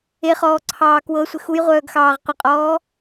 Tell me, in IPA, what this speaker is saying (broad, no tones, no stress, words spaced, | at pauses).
eχɔːǀʰɑː kwɤsʷɪ xujʁʷœːɡxɑːʁ qʷəqʼɔː